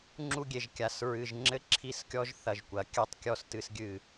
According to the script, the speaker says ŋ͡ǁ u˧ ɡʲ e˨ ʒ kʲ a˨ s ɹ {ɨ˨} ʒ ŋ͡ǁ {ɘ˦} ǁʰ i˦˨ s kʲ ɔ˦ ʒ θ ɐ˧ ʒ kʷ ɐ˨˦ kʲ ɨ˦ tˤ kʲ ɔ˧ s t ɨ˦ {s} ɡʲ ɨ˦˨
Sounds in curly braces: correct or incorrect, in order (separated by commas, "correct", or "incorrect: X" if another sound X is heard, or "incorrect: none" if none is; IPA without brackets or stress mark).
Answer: correct, correct, correct